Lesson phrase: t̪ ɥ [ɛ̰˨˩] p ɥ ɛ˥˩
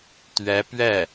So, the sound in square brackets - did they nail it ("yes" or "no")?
no